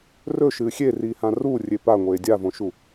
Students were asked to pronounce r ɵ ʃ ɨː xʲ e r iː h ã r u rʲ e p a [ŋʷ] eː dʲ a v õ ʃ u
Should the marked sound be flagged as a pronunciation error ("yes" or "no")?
no